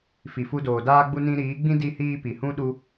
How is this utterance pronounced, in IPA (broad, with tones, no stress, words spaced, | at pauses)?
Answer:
fi˨fu˧doː˨daː˦ ɡ͡bu˧nĩ˧ɾiː˨˦ɡ͡bĩ˦ di˦hiː˦ pi˨hũ˦ ɗu˦